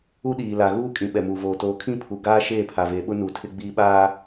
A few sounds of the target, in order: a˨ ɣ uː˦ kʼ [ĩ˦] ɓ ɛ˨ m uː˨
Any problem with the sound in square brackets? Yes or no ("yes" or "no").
yes